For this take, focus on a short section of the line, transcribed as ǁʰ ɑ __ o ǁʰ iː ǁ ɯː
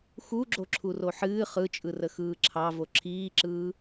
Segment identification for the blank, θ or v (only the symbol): v